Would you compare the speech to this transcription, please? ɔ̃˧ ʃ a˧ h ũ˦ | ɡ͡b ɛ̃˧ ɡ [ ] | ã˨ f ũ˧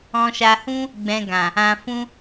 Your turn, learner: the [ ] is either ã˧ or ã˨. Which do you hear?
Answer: ã˨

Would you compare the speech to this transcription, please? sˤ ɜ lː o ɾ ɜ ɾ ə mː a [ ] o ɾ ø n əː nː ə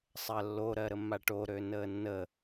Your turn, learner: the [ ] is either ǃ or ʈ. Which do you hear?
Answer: ʈ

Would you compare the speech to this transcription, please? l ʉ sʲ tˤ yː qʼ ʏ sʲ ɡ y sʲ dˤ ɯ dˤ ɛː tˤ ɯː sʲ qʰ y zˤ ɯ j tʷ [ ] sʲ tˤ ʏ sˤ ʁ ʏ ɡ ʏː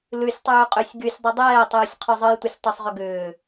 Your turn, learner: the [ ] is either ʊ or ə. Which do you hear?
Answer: ə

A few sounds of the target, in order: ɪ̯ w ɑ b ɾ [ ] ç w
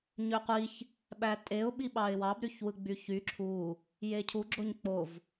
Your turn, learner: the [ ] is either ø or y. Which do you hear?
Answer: y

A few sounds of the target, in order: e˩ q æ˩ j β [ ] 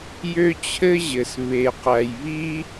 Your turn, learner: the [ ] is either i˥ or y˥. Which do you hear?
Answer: i˥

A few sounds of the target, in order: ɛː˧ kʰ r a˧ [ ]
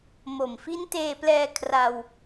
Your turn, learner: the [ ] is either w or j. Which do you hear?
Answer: w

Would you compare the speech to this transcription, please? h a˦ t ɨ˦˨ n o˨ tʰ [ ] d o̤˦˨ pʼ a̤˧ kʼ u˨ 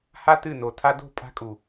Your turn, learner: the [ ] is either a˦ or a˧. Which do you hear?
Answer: a˧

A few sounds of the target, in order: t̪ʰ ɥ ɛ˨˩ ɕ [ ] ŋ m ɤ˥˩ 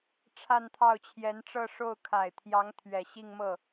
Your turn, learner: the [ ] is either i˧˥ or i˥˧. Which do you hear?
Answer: i˥˧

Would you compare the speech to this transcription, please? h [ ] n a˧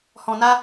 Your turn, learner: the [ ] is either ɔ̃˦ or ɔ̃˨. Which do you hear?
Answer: ɔ̃˨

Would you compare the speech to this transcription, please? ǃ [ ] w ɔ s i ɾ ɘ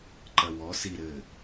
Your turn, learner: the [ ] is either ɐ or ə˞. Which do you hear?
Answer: ɐ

